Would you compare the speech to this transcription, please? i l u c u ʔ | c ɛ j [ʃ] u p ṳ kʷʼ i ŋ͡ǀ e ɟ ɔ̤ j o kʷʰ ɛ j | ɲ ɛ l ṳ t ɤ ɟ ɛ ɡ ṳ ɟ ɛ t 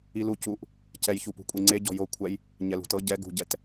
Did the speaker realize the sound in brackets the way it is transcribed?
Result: no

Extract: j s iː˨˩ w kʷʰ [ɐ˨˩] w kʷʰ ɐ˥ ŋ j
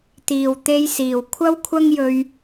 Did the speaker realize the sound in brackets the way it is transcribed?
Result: no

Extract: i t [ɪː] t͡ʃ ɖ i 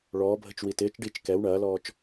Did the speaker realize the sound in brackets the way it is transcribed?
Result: yes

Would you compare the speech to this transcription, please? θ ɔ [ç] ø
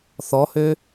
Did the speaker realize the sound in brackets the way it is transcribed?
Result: no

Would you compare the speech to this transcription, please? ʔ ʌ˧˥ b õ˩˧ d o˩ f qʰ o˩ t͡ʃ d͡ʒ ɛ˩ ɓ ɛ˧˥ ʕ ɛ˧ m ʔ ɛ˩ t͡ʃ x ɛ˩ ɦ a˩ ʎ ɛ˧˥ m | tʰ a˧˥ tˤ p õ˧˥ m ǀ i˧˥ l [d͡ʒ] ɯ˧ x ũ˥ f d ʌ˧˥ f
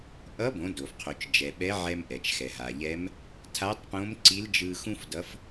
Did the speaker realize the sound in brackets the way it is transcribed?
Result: yes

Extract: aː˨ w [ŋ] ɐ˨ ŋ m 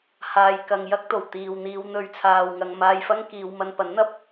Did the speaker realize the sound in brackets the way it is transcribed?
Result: yes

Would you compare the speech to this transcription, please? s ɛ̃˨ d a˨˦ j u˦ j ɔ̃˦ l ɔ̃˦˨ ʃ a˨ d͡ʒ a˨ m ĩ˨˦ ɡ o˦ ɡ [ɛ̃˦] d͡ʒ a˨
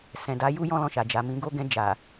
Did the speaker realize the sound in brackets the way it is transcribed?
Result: no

